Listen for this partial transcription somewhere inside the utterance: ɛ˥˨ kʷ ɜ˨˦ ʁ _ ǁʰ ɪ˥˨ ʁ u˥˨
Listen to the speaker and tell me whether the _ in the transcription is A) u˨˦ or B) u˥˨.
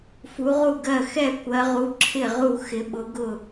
A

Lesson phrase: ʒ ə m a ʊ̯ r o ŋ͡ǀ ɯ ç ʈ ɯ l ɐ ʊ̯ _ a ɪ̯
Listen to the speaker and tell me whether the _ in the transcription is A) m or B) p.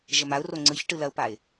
B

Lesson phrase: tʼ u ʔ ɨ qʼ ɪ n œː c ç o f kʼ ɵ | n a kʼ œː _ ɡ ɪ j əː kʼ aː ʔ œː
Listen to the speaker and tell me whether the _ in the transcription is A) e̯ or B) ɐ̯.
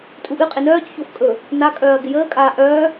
B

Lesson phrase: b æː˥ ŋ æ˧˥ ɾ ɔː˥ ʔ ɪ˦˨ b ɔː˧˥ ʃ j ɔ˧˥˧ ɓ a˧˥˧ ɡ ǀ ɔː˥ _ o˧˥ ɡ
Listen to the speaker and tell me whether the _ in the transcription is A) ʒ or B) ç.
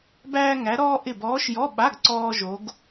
A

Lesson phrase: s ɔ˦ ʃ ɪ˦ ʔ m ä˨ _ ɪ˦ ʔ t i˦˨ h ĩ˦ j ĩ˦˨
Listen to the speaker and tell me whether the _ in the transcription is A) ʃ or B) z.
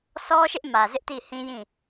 B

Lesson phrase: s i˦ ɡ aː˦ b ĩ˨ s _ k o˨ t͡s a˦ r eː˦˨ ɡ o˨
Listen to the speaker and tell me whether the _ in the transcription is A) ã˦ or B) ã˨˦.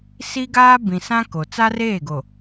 A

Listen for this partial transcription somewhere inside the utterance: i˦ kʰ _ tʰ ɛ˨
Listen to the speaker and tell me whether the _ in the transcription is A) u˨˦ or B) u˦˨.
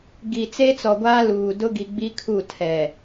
B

